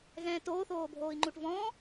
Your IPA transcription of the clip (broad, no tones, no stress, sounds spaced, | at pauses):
ɣ ɛ̃ː t oː θ oː bʱ oː i̯ ŋ͡ǃ u ʈ v ɔ̃ː